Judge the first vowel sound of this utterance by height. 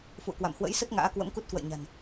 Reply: high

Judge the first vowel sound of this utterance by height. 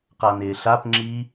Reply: low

